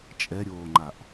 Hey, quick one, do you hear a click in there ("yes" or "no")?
yes